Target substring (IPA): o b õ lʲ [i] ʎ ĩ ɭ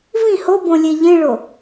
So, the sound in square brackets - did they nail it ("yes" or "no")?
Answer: no